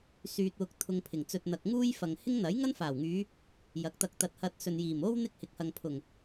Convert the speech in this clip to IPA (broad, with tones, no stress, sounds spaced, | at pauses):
s yː˨ t̚ w ʊ˨ k̚ t̪ʰ ʊ˧ ŋ pʰ ɪ˨˩ ŋ t͡s ɵ˧ t̚ n̪ ɐ˨ k̚ ŋ uː˥ j f ɐ˨ ŋ h ɪ˥ ŋ n̪ ɐ˨˥ j ŋ ɐ˥ n f aː˨˩ w ŋ yː˨˧ | j ɐ˨˥ k̚ t̪ ɐ˧ k̚ t̪ ɐ˧ t̚ h ɐ˧ t̚ s ɵ˨ n j iː˨˩ m o˥ w n̪ ɪ˥ k̚ h ɪ˨˥ k̚ h ɐ˨ ŋ pʰ ʊ˨˩ ŋ